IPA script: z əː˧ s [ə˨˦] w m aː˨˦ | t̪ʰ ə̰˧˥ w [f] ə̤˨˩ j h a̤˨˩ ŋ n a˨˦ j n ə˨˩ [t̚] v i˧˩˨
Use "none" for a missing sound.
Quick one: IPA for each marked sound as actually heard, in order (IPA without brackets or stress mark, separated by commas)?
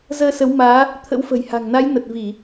ə˨˦, f, t̚